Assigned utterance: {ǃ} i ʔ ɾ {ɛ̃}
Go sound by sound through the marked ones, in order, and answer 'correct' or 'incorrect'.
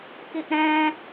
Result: incorrect, correct

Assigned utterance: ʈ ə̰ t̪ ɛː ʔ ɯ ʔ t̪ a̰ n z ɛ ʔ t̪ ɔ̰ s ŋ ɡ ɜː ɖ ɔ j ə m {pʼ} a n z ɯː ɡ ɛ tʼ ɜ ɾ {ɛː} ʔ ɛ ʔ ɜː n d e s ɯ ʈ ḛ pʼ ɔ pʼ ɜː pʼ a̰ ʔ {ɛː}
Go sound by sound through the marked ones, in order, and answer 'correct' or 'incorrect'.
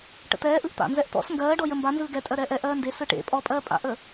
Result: incorrect, correct, incorrect

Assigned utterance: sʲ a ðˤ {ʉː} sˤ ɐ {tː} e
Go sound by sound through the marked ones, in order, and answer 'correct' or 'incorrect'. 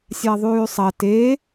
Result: correct, incorrect

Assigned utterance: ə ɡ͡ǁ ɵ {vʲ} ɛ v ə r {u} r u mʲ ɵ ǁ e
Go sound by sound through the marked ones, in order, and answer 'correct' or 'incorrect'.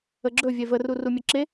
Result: correct, correct

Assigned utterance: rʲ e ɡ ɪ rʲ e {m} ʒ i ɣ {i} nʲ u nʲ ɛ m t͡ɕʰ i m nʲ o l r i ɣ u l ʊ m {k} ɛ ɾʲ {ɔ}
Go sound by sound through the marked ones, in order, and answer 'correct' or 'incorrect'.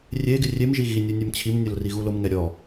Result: correct, correct, incorrect, correct

